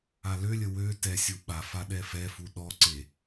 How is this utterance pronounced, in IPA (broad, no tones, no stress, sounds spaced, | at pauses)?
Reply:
a l ø lʲ ə w ø t ɛ sʲ u ɓ a f a ɗ ɛ f ɛ f u ɗ ɔ ǀ e